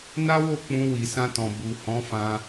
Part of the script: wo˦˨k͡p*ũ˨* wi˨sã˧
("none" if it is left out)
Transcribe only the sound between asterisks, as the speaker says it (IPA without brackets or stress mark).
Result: ũ˧